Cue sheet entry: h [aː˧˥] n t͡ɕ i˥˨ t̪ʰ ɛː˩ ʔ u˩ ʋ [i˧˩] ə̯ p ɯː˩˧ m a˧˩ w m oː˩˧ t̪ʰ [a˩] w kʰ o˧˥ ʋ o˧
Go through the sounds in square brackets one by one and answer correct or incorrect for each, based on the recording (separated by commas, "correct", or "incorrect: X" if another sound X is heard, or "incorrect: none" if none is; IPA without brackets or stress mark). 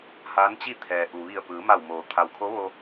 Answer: correct, correct, correct